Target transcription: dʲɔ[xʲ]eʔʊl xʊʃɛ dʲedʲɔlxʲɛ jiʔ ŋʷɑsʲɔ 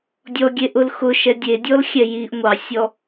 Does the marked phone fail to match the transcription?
yes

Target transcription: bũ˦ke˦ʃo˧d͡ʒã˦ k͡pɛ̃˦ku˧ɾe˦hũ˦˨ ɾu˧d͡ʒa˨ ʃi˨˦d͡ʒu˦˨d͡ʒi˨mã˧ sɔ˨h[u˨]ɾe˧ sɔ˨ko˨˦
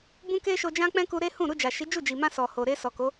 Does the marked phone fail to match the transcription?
yes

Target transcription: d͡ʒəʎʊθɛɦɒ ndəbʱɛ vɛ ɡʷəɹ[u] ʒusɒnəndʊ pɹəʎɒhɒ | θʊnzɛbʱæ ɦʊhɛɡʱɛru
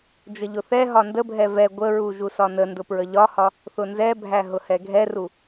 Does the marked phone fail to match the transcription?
no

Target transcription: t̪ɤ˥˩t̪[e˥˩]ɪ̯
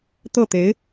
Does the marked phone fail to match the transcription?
yes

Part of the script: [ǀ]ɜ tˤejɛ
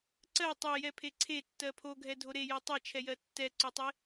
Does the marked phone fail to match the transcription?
no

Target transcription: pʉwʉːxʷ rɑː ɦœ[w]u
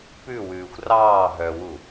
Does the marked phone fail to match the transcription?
no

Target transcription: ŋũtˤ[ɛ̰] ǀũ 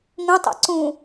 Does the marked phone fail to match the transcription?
no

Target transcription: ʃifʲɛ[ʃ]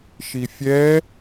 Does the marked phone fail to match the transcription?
yes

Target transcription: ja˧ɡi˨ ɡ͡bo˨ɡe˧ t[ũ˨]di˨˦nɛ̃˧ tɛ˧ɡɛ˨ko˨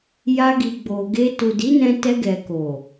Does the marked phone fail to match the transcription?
yes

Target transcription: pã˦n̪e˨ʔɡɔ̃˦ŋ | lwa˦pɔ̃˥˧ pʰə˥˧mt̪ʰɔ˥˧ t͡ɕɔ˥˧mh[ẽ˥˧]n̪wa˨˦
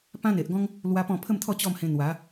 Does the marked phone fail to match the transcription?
yes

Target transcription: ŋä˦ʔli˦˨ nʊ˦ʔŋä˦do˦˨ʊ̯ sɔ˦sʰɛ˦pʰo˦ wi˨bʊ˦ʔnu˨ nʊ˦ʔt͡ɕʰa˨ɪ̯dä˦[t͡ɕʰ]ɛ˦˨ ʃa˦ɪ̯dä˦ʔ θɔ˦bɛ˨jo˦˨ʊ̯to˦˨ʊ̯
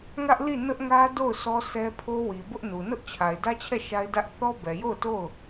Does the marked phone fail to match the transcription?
no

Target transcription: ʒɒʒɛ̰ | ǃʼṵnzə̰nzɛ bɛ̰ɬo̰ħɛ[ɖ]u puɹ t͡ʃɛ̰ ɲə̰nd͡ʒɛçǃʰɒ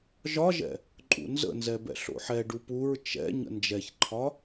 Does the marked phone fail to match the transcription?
no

